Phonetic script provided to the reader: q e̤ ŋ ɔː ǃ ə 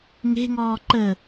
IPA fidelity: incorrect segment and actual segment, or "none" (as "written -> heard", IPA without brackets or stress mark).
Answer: q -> ŋ